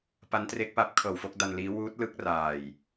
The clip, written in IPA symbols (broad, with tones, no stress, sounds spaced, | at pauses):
p a˦˥ n t r e˦˥ k̚ p aː˦˥ p̚ kʰ ɤː˨˩ w f o˥˩ k̚ d a˧ n l iː˦˥ w uː˦˥ t̚ l ɯ˦˥ k̚ r aː˨˩ j